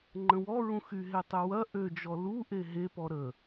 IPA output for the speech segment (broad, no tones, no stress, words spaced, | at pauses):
ŋ͡ǃə̃wɔɹũxy ɦetˤøwɐ ʔød͡ʒɔ luʔe ɦepɔ ɾə